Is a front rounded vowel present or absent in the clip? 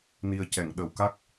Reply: absent